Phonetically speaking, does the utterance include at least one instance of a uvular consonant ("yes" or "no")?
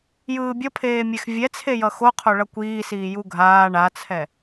yes